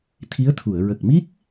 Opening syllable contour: rising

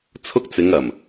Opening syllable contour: high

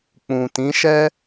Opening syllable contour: low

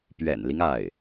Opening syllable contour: low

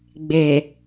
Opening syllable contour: low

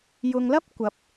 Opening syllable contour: low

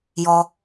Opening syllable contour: low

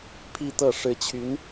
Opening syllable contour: falling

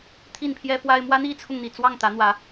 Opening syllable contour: falling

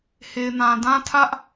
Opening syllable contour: low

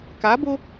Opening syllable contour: rising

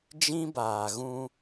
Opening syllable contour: high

